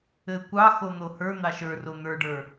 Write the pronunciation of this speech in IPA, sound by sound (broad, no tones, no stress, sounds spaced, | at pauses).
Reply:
ɘ kʷ ɑ x o n̪ o h ə˞ n̪ ɑ ʃ ə˞ r o n̪ ə˞ ɖ ə˞